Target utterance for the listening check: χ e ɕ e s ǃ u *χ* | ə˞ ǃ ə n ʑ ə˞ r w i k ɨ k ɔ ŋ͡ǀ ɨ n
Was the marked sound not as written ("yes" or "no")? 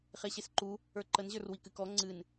yes